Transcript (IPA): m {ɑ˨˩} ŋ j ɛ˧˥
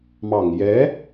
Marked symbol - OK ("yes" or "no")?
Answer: yes